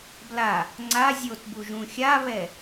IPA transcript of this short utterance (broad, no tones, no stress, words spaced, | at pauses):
bla | ŋ͡ǀa zʲotbu ʒũxʲaβɛ